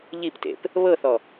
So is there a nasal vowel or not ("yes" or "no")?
no